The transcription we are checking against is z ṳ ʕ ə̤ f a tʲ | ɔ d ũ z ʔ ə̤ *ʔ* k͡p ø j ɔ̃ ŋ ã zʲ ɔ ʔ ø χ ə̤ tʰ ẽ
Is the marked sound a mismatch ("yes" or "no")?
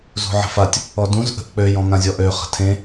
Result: no